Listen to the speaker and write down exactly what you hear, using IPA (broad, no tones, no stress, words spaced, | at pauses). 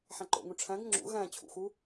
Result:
ħæ̃ǃo̰ŋũ ʈ͡ʂʰæ̃ɡ ŋ͡ǁṵ ɣæ̃ t͡ɕʰṵxu